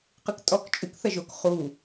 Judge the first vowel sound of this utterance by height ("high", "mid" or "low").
high